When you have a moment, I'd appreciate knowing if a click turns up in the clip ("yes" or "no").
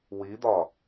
no